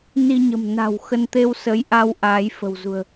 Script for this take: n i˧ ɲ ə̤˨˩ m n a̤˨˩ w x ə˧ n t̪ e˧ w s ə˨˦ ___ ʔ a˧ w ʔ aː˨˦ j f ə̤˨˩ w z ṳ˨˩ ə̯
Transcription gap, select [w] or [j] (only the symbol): j